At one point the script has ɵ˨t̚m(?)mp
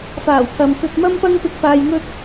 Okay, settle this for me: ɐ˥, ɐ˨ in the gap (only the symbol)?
ɐ˥